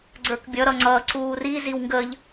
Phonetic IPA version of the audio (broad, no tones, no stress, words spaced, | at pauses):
ɡ͡ǀə˞kbʲʌ ɾʌŋ͡ǀʌ ǀuːri ziwŋɡəʎ